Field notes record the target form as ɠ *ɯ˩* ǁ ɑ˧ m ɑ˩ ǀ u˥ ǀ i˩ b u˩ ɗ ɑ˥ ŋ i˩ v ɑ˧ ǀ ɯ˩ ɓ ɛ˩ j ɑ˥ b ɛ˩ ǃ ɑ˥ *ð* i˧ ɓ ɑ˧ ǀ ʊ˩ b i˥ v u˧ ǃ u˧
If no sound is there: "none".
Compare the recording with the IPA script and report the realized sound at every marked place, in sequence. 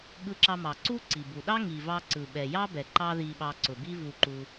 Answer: ɯ˧, ð

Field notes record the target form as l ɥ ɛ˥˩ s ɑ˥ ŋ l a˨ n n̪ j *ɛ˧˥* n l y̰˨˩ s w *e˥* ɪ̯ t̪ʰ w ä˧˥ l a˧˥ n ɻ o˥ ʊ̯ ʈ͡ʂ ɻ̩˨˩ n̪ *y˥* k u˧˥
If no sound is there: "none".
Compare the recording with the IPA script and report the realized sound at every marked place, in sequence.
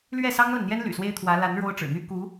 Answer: ɛ˥, e˥, y˥

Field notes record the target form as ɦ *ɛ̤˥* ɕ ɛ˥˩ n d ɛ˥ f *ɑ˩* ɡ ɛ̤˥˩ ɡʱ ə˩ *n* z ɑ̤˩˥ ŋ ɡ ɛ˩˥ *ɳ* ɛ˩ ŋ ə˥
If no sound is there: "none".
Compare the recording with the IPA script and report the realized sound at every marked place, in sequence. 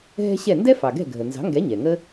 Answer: ɛ̤˥, ɑ˩, n, ɲ

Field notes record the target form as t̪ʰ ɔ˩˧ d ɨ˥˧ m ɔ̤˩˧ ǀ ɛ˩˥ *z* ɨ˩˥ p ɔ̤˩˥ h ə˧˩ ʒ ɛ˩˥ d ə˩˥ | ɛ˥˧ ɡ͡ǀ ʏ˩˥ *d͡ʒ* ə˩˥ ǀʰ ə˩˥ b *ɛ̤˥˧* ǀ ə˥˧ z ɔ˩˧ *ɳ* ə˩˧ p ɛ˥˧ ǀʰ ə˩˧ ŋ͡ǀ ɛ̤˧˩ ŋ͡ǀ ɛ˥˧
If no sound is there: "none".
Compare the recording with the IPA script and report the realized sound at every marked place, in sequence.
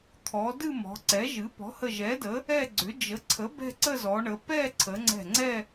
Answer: ʒ, d͡ʒ, ɛ̤˥˧, ɳ

